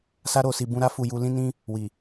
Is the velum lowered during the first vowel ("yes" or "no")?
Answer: no